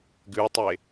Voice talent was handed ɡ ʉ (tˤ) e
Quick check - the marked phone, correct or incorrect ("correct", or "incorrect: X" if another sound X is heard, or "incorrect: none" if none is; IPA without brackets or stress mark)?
correct